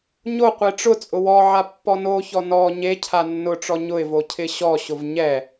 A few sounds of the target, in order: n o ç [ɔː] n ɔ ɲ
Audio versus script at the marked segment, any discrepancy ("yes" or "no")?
yes